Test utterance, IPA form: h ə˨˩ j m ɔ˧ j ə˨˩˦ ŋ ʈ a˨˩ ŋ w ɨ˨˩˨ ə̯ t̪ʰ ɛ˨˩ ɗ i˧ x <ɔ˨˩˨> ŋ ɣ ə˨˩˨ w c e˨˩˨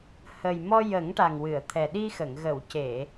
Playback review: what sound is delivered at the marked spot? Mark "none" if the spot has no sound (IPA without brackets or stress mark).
ə˨˩˨